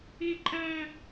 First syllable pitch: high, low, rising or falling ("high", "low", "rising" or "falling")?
high